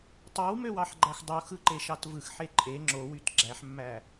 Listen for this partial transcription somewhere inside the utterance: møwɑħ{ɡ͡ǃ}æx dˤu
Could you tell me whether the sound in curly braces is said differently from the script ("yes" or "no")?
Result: no